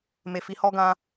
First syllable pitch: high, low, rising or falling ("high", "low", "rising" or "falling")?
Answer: low